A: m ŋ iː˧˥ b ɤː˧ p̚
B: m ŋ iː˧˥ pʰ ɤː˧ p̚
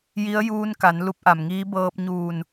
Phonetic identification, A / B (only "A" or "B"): A